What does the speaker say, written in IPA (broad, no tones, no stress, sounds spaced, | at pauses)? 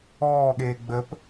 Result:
ɔː ɠ eː ɡ͡b ə p